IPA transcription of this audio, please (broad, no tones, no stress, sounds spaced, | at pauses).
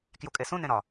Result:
k j u kʼ e s ũ n ẽ ɾ ɒ